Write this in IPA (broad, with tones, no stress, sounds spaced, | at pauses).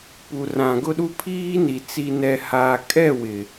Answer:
p u˨ r ã˨ ɡ ʊ˦ ɗ u˦ pʰ iː˦ n i˨ t͡s i˨ n ɛ˨ h aː˨ kʼ ɛ˦˨ w ɪ˨